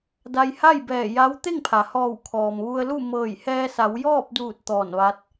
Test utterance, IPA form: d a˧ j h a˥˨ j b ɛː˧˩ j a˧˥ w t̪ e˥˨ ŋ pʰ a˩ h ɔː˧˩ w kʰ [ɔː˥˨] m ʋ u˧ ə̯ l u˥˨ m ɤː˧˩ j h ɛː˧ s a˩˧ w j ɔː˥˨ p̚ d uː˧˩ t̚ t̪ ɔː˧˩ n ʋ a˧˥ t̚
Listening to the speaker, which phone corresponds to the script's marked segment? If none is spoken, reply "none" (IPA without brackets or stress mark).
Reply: ɔː˩